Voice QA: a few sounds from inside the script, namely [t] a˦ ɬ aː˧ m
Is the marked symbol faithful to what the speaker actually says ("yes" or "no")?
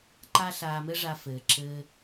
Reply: no